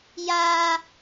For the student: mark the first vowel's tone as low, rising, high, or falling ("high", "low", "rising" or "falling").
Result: high